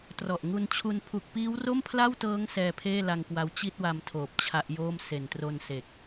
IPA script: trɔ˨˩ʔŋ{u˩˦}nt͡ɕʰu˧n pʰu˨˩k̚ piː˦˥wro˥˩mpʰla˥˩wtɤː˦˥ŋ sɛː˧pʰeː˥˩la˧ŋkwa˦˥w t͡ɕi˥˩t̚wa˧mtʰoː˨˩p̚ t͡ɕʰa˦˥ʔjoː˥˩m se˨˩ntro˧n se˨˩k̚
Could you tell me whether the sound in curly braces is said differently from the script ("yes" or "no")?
yes